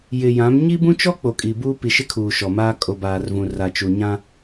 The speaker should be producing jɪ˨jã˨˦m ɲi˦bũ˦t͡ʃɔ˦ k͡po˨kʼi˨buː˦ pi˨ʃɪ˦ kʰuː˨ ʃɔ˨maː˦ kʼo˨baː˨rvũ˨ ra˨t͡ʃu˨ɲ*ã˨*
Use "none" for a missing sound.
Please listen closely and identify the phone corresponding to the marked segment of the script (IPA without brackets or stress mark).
ã˦